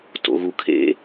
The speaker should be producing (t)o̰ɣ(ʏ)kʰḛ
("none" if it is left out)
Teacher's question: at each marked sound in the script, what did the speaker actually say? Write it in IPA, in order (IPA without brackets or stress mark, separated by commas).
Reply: t, u